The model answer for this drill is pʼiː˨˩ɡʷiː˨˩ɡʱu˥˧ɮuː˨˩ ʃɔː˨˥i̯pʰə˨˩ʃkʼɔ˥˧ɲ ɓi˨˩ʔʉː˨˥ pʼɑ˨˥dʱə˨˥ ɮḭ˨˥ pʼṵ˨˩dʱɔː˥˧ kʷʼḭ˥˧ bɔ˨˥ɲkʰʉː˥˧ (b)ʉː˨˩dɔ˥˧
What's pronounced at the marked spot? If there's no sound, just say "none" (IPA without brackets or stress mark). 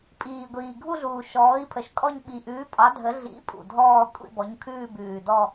b